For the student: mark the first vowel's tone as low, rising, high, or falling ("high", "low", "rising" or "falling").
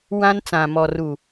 high